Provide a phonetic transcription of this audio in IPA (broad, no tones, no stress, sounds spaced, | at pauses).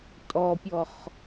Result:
tʼ ɔ pʲ ɔ χ